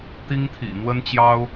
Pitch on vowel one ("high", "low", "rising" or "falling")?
high